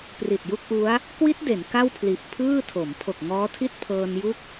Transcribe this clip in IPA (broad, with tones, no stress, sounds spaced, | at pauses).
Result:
p r i˨˩ t̚ j u˥˩ k̚ ʔ u˦˥ a̯ | k w i˦˥ t̚ d e˩˦ n k a˥˩ w pʰ l i˨˩ ʔ pʰ ɯː˥˩ tʰ o˩˦ m pʰ o˨˩ k̚ ŋ ɔː˦˥ tʰ i˥˩ t̚ pʰ ɤː˧ n j u˥˩ k̚